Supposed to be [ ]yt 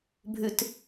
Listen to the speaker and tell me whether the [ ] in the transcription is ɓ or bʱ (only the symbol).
bʱ